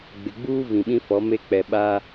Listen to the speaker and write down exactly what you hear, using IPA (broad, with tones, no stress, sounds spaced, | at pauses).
ɡ͡b ɪ˨ ɡ͡b uː˦ v ĩ˨ ɓ ĩ˦ f ɔ˨˦ m e˦˨ k͡p ɛ˨ ɓ a˦